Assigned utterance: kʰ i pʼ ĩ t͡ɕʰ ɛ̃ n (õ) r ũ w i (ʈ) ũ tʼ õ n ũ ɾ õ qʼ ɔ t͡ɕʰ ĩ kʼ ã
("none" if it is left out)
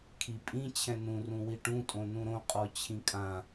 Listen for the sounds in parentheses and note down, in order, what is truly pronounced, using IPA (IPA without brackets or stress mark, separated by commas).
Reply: ũ, ʈ